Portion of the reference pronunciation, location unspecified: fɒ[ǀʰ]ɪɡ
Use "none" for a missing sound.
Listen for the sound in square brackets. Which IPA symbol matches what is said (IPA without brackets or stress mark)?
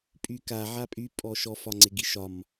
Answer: ŋ͡ǀ